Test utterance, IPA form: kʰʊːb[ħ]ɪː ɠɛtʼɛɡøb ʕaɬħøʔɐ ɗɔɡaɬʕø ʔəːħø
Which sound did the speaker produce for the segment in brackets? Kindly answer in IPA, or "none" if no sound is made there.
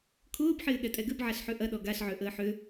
ħ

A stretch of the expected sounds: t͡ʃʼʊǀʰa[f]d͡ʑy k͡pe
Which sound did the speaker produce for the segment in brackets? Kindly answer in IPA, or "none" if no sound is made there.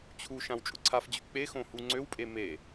f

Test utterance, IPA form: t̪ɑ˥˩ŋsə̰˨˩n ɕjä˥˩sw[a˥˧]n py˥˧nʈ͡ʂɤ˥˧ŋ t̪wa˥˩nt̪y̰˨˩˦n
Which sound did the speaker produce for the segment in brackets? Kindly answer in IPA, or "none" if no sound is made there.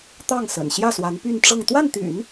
a˧˥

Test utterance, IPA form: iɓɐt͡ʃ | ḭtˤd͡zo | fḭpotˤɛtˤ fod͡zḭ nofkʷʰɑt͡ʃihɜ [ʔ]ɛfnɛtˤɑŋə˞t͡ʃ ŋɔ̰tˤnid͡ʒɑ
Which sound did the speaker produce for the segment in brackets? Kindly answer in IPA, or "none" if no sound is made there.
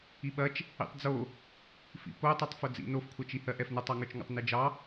ʔ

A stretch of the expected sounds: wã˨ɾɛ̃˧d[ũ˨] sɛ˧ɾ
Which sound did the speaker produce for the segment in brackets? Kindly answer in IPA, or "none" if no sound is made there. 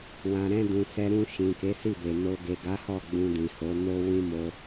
ũ˨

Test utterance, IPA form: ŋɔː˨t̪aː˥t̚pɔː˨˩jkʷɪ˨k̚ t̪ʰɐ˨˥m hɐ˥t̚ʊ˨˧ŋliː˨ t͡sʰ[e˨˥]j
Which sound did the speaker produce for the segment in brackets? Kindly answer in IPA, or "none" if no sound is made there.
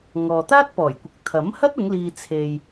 e˨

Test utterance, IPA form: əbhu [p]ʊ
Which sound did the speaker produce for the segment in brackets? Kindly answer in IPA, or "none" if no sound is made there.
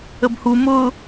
m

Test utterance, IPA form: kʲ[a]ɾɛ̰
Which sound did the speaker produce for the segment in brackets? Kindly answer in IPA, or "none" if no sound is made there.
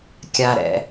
a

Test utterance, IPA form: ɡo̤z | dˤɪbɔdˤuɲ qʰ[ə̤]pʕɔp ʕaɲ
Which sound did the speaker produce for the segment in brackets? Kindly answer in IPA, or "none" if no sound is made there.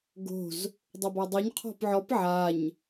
ɔ̤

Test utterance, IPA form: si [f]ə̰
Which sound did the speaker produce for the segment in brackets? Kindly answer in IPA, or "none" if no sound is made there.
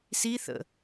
θ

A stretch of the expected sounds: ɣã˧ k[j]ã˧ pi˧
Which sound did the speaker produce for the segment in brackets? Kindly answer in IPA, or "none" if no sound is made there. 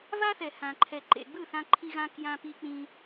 j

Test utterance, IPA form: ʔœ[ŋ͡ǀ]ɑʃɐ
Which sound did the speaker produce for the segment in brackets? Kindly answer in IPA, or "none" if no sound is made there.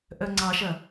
ŋ͡ǀ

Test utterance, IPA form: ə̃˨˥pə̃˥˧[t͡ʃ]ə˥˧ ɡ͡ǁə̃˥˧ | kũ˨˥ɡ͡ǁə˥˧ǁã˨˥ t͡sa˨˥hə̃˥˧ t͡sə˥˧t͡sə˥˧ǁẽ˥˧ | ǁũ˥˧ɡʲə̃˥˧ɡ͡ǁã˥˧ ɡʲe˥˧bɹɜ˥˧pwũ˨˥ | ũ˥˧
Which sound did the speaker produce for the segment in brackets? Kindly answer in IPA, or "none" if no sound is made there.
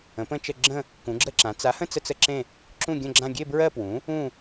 t͡ʃ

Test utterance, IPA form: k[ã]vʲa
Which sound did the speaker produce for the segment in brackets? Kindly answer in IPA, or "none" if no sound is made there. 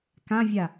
ã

